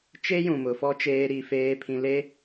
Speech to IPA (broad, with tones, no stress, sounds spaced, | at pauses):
t͡ʃ e˦ j ũ˨ m ʊ˨ f ɔ˦ t͡ʃ eː˦ ɾ i˦˨ f eː˦ pʰ ĩ˨ l e˦